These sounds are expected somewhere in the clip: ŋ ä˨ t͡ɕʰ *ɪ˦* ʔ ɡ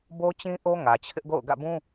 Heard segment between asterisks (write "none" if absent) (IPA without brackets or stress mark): ɪ˦